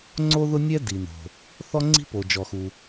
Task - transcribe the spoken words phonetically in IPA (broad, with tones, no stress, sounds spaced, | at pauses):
ŋ͡ǀ o˥ ð ʊ˥ nʲ ɛ˥ d i˩ n o̤˩ | θ ɔ˥ ŋ͡ǀ i̤˥ p o˩ d͡ʒ ɔ˩ x u˩